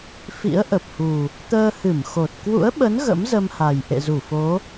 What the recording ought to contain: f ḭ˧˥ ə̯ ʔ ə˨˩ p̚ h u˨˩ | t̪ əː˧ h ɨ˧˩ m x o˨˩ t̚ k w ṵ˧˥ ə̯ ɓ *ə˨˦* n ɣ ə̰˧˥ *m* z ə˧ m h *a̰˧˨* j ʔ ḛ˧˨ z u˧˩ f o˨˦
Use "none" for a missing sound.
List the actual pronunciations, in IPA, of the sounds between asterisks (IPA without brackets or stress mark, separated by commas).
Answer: ə˨˦, m, a˨˩